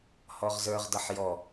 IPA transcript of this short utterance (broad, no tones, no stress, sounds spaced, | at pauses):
h ɔ ʁ z ə˞ ʁ d ʌ ħ j ɔ